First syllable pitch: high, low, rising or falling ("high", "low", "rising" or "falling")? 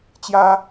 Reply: high